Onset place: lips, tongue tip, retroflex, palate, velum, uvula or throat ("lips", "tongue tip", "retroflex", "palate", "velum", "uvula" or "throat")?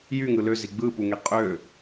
palate